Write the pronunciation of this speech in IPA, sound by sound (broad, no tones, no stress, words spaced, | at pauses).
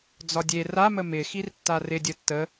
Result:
d͡zɒdʲe ramə mɪxirtːa rɪ dʲətːə